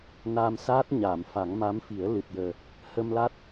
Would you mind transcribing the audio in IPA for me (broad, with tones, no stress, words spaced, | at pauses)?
naː˧msaː˦˥t̚ ɲaː˨˩˨mfa˨˩˦ŋma˧˥mfi˨˩˦ə̯ lɨ˨˩t̚jəː˨˩ | hə˧mla˦˥t̚